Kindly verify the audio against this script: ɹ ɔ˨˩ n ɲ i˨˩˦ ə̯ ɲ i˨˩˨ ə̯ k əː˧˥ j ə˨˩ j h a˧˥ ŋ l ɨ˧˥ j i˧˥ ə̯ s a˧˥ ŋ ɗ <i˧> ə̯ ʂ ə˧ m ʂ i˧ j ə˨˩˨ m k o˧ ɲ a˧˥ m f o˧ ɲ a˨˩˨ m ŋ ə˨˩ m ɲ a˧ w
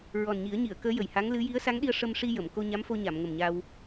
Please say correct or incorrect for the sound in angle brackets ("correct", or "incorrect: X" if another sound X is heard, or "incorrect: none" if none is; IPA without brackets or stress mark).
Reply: correct